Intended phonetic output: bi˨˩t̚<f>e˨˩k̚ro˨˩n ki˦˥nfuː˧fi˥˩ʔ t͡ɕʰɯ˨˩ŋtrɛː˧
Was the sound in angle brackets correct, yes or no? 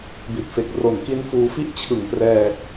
yes